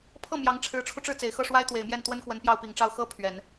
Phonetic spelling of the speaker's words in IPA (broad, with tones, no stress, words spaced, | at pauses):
pʰɤ˥˩ mjɑ˧˥ŋʈ͡ʂʰɻ̩˧˥ʈ͡ʂʰu˧ʈ͡ʂɻ̩˥˩ t͡se˨˩ɪ̯xɤ˥˩ʂwa˥ɪ̯ t̪we˨˩ɪ̯mjɛ˥˩nt̪wə˥nkwə˧˥n pjɑ˥˩ʊ̯pi˨˩ŋʈ͡ʂɑ˥˩ʊ̯ xɤ˥ pʰɥɛ˨˩˦n